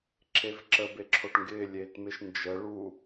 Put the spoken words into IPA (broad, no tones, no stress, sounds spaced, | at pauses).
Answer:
ǁ e v ǁ ə b e ǁʰ o ʈ ŋ ɡ ɪː lʲ eː t m ɪ ʃ n d͡ʒ ə ɭ u